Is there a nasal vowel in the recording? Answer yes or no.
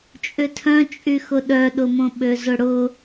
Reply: yes